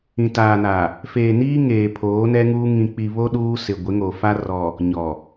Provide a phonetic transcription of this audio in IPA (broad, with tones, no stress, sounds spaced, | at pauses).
ĩ˨ t aː˨ n a˨ | f eː˨ n iː˦ ŋ eː˨ pʰ oː˨˦ n ɛ˦ ŋ uː˦ ŋ ĩ˨ k͡p i˨ β o˦ ɗ uː˦ s ɪ˨ ɡʷ ɪ˨˦ ŋ o˨ f a˦ r ɔ˨ | ɲ ɔ˨